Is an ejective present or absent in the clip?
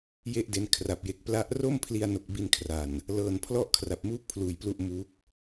absent